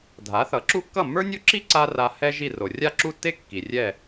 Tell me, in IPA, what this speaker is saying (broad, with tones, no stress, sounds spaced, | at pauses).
dʱ a˩˥ θ ʌ˩˥ ǁ u˥ kː ʌ˥˩ mː ə˞˥ nʲ o˥ ǁ i˥ ǀ a˥ r a˧ h ɛ˥ ʒ i˥˩ r o˩ rʲ a˥˩ ǁ u˥˩ tː e˥ kː i˩ rʲ ɛ˥˩